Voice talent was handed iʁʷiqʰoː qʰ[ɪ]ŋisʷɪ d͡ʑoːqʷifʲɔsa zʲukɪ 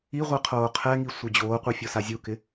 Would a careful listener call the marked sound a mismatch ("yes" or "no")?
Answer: yes